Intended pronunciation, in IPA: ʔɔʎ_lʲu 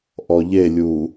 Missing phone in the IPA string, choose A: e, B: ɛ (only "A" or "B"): A